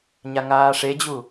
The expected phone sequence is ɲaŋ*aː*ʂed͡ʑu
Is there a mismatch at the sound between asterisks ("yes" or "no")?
no